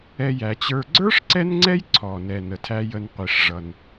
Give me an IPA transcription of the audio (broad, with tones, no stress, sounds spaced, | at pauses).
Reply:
ɛ˦ j æ˨ t͡ɕ ə˞˦ ɡ͡ǀ ə˞˥ ʂ ǀ ɛ˦ n ŋ͡ǀ ɛ˦ j ǀʰ ɔ˩ n ɛ˩ n ə˩ tʰ æ˨ j ə˨ n qʷ i˩ ʂ ʐ ʌ˩ n